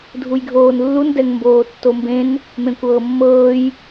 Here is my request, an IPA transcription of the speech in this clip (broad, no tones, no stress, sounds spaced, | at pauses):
dʱ u j ɡʱ oː n lː u n d ɛ ŋ m b oː tː o m b ẽ n | m ẽ kʷ ɤː mː ɤː j